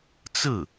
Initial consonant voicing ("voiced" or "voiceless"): voiceless